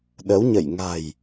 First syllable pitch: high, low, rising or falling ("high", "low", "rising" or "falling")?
rising